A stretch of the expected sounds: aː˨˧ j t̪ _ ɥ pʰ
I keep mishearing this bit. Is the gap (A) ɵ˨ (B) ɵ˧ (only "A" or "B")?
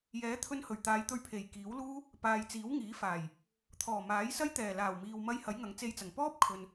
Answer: B